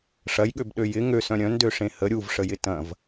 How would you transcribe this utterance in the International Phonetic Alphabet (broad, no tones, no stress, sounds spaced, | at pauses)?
ʂ ɐ j ɠ ø b ɗ ø j ɪ ŋ ø s œ̃ ɾʲ œ̃ n d ø ʂ ẽ h ə ɾʲ u v ʂ ə j ɪ t ɐ̃ v